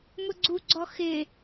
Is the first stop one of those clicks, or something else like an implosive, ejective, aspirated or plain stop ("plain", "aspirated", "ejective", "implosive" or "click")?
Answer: click